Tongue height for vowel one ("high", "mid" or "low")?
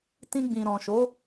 high